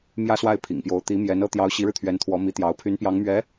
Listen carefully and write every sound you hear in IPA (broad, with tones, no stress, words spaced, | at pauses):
mjä˥swa˥˩ɪ̯pʰḭ˨˩ŋpjo˧˥ʊ̯ t̪i˧˥ mjɛ˧˥nɤ˥ t̪jɑ˧˥ʊ̯ɕi˧˥ɻɻ̩˧ t̪ʰɥɛ˧˥nt̪ʰwɔ˧˥mi˧˥t̪jɑ˧˥ʊ̯ pʰy˧˥npjɑ˧˥ŋmɥɛ˧˥